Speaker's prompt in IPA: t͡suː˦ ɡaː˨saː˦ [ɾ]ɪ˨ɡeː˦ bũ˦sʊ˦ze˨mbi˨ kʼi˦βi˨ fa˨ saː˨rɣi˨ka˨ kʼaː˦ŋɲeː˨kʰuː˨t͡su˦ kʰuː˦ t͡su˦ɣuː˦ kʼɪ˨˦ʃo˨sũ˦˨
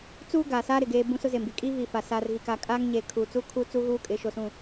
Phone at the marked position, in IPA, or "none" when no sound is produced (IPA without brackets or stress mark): ɾ